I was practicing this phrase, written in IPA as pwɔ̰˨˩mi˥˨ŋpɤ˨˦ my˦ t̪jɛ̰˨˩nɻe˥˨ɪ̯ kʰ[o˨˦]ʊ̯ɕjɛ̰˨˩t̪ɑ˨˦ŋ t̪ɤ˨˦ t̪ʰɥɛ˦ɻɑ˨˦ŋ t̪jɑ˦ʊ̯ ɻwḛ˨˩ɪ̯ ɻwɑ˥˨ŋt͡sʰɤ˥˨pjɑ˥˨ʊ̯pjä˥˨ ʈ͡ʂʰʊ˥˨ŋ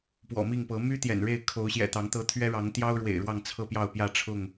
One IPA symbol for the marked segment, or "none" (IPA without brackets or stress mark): o˨˦